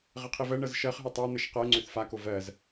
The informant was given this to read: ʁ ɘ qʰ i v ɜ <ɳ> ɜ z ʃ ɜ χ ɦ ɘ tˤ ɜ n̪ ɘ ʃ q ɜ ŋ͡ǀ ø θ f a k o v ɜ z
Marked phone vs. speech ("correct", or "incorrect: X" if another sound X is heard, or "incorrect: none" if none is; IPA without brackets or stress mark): correct